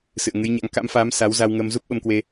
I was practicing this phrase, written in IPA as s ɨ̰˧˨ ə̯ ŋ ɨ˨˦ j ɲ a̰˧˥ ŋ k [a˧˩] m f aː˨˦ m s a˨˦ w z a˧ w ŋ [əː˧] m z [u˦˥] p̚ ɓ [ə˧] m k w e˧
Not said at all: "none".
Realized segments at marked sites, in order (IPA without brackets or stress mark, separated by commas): a̰˧˥, əː˧, u˦˥, ə˧